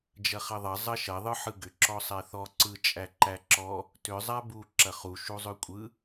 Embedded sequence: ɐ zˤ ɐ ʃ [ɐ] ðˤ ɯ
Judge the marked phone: correct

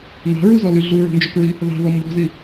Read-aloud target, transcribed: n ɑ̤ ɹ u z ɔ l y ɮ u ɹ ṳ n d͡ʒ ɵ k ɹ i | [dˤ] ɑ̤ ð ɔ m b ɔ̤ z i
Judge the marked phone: incorrect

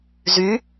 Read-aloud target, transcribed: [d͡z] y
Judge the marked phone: incorrect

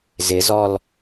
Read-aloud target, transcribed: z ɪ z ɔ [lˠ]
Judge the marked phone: incorrect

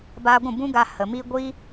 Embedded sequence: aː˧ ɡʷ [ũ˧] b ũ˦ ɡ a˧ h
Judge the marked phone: incorrect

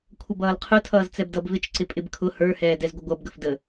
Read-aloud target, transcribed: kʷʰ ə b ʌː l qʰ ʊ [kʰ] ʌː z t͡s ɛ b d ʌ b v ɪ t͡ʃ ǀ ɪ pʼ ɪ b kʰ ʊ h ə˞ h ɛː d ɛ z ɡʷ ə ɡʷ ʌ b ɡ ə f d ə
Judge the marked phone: incorrect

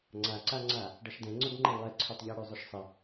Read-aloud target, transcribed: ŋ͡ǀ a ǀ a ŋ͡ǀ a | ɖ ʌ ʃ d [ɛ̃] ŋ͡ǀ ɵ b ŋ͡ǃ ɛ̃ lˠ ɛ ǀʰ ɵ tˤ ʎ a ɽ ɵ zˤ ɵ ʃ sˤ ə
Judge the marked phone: correct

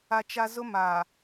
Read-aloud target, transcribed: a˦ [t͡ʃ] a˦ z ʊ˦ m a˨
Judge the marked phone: correct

